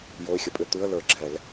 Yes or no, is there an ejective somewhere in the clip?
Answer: yes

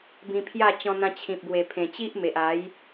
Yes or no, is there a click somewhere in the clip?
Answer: no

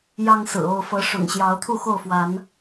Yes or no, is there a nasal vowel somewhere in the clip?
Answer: no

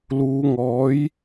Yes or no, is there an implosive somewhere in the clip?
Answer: no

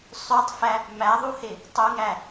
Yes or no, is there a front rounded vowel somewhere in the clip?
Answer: yes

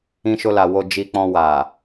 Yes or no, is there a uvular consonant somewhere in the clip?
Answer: no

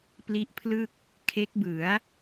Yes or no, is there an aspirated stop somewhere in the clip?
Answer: yes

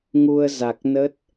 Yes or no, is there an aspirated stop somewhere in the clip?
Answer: no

